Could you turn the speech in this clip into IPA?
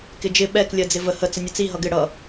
k ɪ d͡ʒ ɪ ɓ ɛ k lʲ ɜ d͡z ɪ v ə h ə t͡s ə nʲ ʊ t͡s i ɦ ʌ ɡ ɪ ɽ ʌ

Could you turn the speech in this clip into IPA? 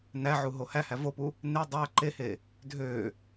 n æ ʕ u ɦ o h æ h æ v o p u | n e dˤ æ ǃ e h e | dʱ ø

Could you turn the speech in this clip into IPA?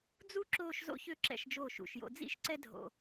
d͡z u˥ ǁ oː˥˧ ʃ z o̰˥ ç ø˥˧ ǁ ɛ̰˧˩ ʃ d͡ʒ oː˧˩ ʃ ṵ˧˩ ʃ j o̰˧ d͡z ḭ˥ ʃ ǀ ɛ˥ dʱ o̰˧

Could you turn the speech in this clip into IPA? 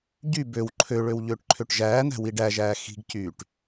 ɟ y b ø w ǃʰ ø ɭ ø w ʎ øː ʈ ǃʰ ø ʈ ʒ æː n̪ æ̤ w i ɖ æ ʒ æː x i̤ ɡ c yː ʈ

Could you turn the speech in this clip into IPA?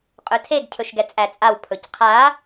qʼ ɵ tʰ e ɡ cʰ ɵ ʃ ɡ ɛ t͡sʼ æ t͡sʼ a w pʰ ɵ c qʰ a

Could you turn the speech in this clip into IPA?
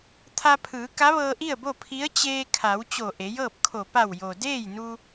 t̪ʰ a˧ pʰ ɯː˩˧ k a˧˥ ʋ ɤː˧ ʔ i˥˨ ə̯ b o˥˨ pʰ i˧˥ ə̯ t͡ɕ eː˧ kʰ a˩˧ w t͡ɕ o˧˩ ʔ e˩˧ j ɤː˥˨ p̚ kʰ o˧˩ p a˧˩ w j o˩ d eː˥˨ j n u˧

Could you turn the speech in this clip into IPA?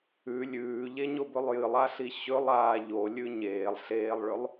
ʉ lʲ ʉː ʎ e ɲ o b ɵ lˠ j ɨ lˠ a ɬ i ɕ ɵ lˠ aː ʎ o lʲ ʉ ɲ eː lˠ ɬ eː lˠ ɭ ɵ lˠ

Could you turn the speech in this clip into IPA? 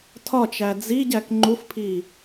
tʰ ɒ t͡ʃ æ d͡z i ɟ æ k ŋ͡ǃ u f pʰ i

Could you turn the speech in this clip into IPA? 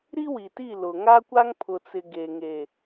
ɾ i˦ w i˨ t i˦˨ l ʊ˨ ŋ a˦ kʷ a˦ ŋ pʰ ʊ˨ t͡s ɪ˨ ɡ e˨ ŋ e˨

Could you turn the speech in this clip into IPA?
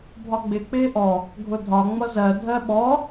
bʱ ɒ ɡ͡b ɪ k͡p ɪː ʔ ɔ | ɡʱ ʊ dʱ ɒ ŋ͡m ʌ z ɜ dʱ ɜ ɓ ɔ

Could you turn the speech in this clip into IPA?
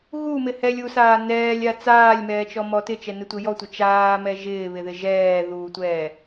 ɣ u m ɪ h ɛ lʲ u s aː n ɛː lʲ a t͡s aː lʲ m ɛː t͡ʃ ɔ m ɔ t ɪ t͡ʃ ɛ n ɪ tʷ ɪ j ɔ tʷ ɪ t͡ʃ aː m ɛ ʒ ɪː β ɪ ð ɪ ʒ ɛː ð uː tʷ ɛː

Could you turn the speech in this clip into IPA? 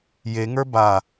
j e ŋ ə˞ b a

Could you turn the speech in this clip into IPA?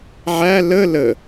ʕ æ l ə l ə

